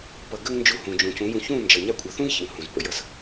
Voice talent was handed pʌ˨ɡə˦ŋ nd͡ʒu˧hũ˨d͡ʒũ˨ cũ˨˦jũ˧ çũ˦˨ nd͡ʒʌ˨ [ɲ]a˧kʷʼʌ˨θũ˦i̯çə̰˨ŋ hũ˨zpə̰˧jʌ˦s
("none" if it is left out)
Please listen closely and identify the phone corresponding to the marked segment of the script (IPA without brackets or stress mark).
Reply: ɲ